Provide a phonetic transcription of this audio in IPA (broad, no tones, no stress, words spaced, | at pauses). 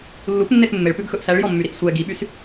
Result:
lːupnːes mːeɭpʉɡxɵʔ sæɭjɔmːyɾiʔ sʷɛ ɡiɓys